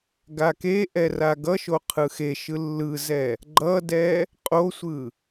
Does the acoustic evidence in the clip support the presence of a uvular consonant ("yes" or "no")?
yes